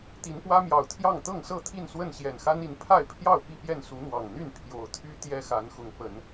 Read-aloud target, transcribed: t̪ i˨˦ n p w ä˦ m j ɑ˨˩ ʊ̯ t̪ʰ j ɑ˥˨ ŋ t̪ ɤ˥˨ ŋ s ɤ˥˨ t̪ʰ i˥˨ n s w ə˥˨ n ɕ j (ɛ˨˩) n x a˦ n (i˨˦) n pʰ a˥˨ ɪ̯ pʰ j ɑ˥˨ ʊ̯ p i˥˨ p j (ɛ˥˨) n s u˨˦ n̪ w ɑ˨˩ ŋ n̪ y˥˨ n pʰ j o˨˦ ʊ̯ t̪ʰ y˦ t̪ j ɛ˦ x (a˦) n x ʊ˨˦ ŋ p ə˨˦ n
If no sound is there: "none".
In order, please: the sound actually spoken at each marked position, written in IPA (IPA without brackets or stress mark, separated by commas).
ɛ˨˩, i˨˦, ɛ˥˨, a˨˦